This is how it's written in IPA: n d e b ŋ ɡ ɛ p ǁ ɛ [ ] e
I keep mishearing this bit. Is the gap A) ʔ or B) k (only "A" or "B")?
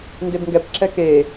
B